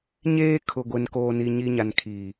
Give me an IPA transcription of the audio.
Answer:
ɲ eː˦ kʰ ʊ˨ ɡʷ e˨ n k oː˨ n i˨ ɲ i˨ ɲ a˨ n kʰ iː˨

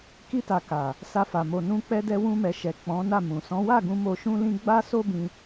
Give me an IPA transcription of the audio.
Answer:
k i˧ t a˨ k a˨ | s a˧ f a˨ m o˨ n ũ˧ k͡p ɛ˧ d ɛ˧ w ũ˧ m ɛ˨ ʃ ɛ˨ k͡p ɔ̃˨˦ n a˦˨ m ũ˨ s ɔ̃˨˦ w a˦˨ ɡ ũ˧ m o˧ ʃ ũ˦ l ĩ˦ ɡ͡b a˦ s o˦ b ĩ˧

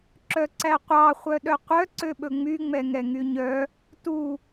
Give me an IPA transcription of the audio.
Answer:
ǁ œ ǀ æ qʷ ɑ χʷ œ ɗ œ qʷ œ ǀ ø ɓ ɵ ŋ͡m y ŋ͡m ɛ ŋ ɛ ŋ y ɲ œ | t u

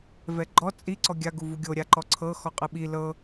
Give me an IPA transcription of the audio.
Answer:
v ɛ ɡ͡ǃ ɔ t͡sʼ i ǀ ɔ ɡʲ a ɡ u v u ɡʲ o ɾʲ a ǃ ɔ ǀʰ ɤ x ɔ qʼ ɯ ɓ i l ɤ

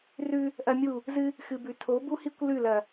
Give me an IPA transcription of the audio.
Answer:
r ʉ˦ | ʔ ɐ˦ mʲ u˦˨ | z ɨ˦ | x ɨ˨ b ʉ˨ tʰ o˨˦ b u˦ h i˦ kʷ l ʉ˦˨ l ɐ˨

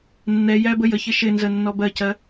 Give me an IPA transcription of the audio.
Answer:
nː ɛ j æ b ə j ə ç ɪ ʃ ɪ n z ə nː ɔ b ɜ c ɜ

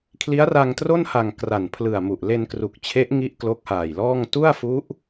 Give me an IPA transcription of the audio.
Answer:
kʰ l i˦˥ a̯ r a˧ ŋ t r o˥˩ n h a˨˩ ŋ k r a˨˩ n pʰ l ɯ˨˩ a̯ m u˨˩ ʔ l e˧ n k r u˨˩ k̚ t͡ɕʰ e˦˥ ʔ ŋ i˦˥ ʔ k l o˦˥ k̚ h aː˨˩ j l ɔː˥˩ ŋ t u˥˩ a̯ f u˦˥ ʔ

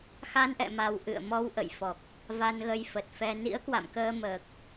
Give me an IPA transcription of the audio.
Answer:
x a˧ n ʔ ɛ̰˧˨ m a˨˩ w ʔ ɨ̰˧˨ ə̯ m ɔ˧ w ʔ ə̰˧˨ j f ɔ˨˩ k̚ | v a˧ n ɣ ə˧ j f ə˨˩ t̚ f ɛ˧ n ḭ˧˥ ə̯ k w a̰˧˨ m k əː˧ m əː˨˩ k̚

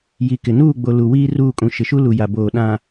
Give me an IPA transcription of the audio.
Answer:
j i˨ k ɪ˨ n uː˦˨ ɡ͡b o˨ l u˨ w iː˦ r uː˦˨ kʼ ũ˨ ʃ ɪ˨ ʃ u˦ l u˨ j a˨ b oː˨ ɗ ã˨

